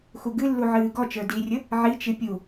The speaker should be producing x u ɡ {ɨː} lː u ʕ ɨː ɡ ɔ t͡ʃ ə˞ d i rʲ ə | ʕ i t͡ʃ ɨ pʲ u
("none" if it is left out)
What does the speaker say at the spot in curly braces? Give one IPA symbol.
ɨ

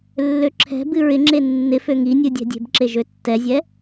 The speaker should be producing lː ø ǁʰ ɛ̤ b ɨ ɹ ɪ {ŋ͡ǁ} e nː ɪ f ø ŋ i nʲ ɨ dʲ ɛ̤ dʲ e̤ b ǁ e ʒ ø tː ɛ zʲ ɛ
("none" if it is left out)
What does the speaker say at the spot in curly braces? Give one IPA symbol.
ŋ͡ǁ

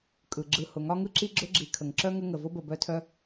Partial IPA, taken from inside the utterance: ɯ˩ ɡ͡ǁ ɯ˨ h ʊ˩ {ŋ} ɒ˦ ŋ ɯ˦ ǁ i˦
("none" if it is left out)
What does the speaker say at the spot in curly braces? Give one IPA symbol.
ŋ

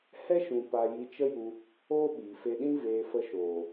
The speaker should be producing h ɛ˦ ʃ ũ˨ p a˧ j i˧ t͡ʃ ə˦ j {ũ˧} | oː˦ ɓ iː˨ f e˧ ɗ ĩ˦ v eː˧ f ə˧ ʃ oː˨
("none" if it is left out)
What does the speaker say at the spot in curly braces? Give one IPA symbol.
u˧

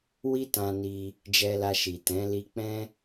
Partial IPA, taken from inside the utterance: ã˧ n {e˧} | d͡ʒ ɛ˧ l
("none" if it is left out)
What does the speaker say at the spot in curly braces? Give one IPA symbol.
i˧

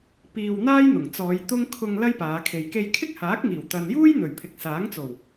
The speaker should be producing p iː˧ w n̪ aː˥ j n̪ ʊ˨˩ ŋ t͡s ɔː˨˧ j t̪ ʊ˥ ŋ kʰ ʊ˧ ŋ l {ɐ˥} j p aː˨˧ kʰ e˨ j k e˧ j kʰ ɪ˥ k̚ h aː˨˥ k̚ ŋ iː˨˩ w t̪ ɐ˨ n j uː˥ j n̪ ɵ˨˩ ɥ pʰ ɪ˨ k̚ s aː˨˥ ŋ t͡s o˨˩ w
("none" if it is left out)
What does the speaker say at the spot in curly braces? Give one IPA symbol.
ɐ˥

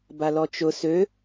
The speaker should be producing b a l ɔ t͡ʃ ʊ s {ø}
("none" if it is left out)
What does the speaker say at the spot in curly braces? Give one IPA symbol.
ø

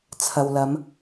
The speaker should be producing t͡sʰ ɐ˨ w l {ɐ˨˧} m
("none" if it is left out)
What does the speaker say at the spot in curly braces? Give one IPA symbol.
ɐ˨˧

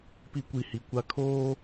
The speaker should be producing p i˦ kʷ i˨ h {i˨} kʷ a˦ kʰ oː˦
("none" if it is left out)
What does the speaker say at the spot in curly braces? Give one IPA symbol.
i˨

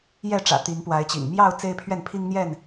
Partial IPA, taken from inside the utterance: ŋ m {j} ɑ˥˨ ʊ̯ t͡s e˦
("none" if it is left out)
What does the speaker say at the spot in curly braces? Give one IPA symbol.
j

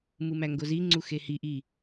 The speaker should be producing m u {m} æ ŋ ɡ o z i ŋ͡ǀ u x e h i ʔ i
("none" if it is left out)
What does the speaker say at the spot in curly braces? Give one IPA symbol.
m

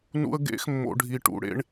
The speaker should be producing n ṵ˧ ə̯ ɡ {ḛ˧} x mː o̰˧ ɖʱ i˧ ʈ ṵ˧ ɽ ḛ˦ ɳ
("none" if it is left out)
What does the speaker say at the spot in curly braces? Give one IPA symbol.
ḛ˧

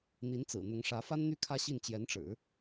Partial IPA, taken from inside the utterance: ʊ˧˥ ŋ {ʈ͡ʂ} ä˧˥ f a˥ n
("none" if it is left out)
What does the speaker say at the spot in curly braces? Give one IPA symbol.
ʂ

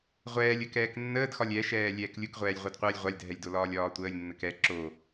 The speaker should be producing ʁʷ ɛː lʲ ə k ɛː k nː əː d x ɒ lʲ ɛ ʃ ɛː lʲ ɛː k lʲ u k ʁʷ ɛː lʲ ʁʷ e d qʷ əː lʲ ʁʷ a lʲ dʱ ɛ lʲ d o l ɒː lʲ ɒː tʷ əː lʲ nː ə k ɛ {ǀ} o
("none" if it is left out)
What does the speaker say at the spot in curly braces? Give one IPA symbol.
ǁ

